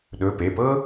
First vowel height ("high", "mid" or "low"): mid